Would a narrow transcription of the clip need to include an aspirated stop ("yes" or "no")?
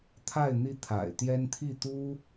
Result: yes